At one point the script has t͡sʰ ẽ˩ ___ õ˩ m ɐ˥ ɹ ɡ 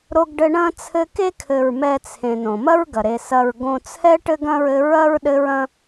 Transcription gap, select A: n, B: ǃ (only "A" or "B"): A